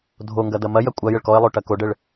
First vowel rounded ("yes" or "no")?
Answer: yes